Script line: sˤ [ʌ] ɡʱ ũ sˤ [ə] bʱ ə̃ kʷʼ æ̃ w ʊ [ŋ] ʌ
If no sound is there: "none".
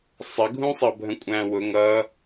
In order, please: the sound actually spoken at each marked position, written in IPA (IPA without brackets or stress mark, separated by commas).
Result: ə, ʌ, ŋ